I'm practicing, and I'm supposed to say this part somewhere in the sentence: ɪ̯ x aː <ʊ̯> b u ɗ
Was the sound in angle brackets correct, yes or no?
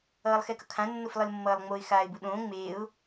no